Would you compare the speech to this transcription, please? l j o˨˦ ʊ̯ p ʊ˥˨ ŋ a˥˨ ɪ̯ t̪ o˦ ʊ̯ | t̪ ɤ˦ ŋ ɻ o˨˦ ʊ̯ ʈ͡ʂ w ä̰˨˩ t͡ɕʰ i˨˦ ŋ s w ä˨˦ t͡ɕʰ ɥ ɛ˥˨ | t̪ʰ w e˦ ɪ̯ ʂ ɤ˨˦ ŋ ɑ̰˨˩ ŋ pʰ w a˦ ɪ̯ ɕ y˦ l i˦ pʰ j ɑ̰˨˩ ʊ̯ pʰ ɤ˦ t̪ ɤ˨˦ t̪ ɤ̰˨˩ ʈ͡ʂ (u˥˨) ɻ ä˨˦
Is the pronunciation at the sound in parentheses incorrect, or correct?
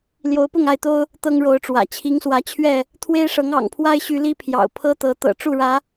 correct